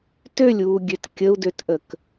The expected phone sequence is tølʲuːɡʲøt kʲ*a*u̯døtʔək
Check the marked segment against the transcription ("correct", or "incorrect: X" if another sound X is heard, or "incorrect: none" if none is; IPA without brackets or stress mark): incorrect: ə